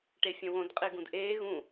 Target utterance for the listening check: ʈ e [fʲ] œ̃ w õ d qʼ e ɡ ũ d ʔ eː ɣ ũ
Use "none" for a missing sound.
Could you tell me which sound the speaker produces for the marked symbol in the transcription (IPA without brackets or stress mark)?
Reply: fʲ